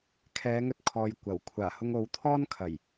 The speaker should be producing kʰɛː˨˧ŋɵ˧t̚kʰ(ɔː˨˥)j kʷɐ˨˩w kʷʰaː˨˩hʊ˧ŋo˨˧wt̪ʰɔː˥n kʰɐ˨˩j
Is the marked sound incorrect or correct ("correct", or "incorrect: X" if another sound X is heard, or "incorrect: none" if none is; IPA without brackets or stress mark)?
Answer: incorrect: ɔː˨